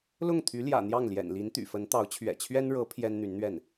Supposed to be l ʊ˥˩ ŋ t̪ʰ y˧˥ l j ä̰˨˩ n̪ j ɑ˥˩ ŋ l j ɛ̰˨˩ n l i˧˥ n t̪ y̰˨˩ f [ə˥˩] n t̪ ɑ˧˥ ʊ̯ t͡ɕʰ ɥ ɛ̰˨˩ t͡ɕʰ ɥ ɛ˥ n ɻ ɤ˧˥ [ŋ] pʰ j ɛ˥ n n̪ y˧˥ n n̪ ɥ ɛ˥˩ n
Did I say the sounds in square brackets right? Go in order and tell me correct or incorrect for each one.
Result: incorrect: ə˧˥, incorrect: none

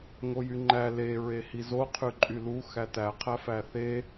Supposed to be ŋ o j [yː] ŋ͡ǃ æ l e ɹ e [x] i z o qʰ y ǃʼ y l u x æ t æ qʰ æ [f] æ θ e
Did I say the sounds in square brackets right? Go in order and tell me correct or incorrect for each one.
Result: incorrect: y, incorrect: h, correct

